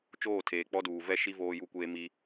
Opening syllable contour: falling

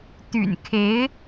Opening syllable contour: low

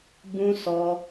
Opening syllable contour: high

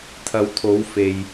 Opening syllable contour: rising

